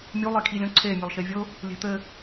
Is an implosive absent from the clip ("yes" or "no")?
yes